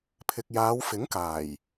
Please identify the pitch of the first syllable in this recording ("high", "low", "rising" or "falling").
low